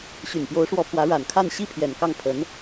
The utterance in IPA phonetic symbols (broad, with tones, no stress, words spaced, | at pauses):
ɕy˨˩npjo˧˥ʊ̯ʂwɔ˧˥pʰwä˧˥ ɻa˨˩nkʰa˥˧n ɕi˥˩pʰjɛ˨˩n kɑ˥˩ŋ pʰə˧˥n